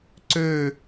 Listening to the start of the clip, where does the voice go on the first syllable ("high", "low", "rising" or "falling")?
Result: falling